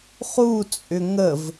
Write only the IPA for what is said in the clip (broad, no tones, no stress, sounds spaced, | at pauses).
χ u t͡sʼ ʏ ŋ ə v